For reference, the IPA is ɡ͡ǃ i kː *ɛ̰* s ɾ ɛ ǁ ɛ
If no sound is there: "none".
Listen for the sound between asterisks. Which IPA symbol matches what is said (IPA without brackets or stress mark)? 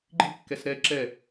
ɛ